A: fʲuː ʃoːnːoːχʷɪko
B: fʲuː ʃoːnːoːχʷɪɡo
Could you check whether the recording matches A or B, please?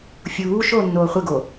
B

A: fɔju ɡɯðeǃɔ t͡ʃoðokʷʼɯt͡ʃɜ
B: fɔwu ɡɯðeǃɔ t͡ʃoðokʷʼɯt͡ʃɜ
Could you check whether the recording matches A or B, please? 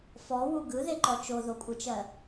B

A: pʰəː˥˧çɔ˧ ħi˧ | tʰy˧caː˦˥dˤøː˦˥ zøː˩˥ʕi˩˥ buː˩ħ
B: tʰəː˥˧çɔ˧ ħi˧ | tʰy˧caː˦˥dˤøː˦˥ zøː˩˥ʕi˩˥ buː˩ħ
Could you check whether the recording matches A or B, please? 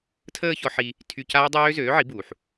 B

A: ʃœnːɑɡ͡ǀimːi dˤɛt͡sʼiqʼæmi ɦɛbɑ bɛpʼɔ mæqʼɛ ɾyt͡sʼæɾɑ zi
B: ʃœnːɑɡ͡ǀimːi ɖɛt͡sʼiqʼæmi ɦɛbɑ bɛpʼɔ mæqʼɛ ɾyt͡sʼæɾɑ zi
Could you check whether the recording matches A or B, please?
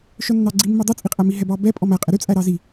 A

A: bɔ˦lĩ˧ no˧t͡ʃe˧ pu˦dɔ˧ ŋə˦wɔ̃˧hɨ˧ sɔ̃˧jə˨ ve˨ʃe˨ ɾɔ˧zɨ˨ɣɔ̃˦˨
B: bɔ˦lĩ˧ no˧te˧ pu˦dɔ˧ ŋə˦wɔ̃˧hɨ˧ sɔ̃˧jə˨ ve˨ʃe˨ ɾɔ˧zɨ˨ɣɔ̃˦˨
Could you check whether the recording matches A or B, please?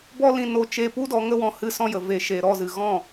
A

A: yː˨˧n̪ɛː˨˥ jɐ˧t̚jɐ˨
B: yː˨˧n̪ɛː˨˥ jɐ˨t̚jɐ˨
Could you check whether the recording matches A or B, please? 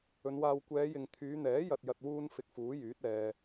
B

